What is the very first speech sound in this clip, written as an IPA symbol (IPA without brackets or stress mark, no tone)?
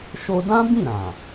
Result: ʃ